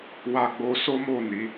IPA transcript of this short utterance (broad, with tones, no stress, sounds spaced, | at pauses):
w a˧ ɡ͡b o˧ s o˦ m o˦˨ n i˨˦